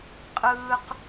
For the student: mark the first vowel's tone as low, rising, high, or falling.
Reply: high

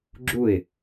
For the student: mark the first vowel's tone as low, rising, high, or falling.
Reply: falling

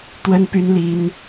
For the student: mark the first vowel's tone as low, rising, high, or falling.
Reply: high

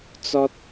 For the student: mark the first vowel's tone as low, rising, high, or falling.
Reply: high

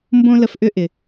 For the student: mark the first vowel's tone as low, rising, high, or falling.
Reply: high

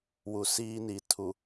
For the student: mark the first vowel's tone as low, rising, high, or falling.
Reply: low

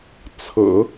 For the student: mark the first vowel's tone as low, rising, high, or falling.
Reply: low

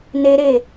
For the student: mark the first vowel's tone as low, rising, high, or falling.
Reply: high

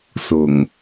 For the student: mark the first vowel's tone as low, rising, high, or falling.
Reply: low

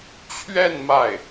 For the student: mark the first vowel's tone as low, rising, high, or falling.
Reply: falling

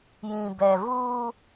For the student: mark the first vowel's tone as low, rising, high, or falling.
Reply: low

